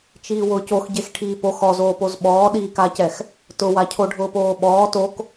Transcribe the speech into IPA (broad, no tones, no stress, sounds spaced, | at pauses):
t͡ʃ iː w ʊː c o x ɟ e x ʈʰ iː p o x ɔ z oː p o z ɓ ɔː ɗ iː k a c ɛ x | t ʊ w a cʰ o ɖʱ ʊː p oː ɓ ɔː t o k